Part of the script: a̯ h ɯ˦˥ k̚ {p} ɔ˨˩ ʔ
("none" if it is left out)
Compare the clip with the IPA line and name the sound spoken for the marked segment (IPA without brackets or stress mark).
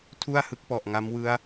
p